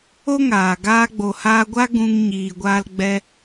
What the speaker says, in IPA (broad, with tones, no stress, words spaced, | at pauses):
o˦ŋaː˨ ɡaː˧ɡ͡bo˨haː˧ɡʷa˦ ɡũ˧ŋ ɲiː˨ɡʷaː˧lɡ͡bɛ˧